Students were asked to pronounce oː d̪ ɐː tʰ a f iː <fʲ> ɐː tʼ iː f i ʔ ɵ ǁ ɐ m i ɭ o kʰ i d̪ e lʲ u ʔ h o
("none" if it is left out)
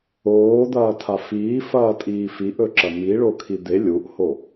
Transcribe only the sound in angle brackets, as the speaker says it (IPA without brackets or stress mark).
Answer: f